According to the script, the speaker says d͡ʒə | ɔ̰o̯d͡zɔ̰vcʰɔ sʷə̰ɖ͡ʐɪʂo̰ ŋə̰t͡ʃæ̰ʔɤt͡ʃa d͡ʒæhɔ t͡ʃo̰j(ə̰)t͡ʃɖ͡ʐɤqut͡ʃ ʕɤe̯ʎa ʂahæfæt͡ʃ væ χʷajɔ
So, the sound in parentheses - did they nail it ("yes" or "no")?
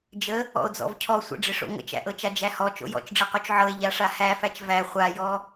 no